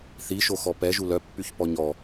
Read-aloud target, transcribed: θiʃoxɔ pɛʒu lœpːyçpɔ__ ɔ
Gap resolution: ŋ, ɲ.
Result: ɲ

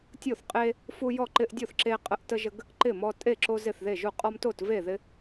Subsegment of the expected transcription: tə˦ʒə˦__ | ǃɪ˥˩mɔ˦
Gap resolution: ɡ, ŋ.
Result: ɡ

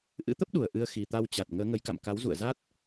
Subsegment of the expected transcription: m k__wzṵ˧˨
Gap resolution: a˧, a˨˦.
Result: a˨˦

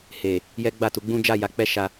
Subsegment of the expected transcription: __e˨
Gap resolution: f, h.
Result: h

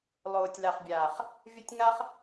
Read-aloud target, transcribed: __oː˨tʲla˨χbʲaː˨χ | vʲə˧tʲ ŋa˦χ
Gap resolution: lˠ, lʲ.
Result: lˠ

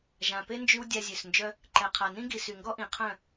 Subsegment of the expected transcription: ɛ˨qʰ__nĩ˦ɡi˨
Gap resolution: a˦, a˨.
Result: a˨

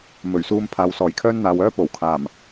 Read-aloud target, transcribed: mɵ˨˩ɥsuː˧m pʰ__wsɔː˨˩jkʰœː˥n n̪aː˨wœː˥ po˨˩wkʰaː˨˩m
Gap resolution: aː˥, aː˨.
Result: aː˨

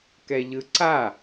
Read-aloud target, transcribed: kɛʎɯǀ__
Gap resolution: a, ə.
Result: a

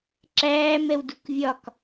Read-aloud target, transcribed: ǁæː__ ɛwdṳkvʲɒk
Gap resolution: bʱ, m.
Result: m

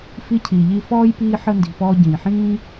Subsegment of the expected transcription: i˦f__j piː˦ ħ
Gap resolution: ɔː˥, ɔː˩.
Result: ɔː˥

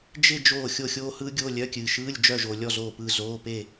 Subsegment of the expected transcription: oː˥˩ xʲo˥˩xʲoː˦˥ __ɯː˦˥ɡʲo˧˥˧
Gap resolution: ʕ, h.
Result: h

